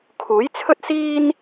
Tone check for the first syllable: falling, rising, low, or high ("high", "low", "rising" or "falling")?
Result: rising